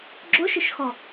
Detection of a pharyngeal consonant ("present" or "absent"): absent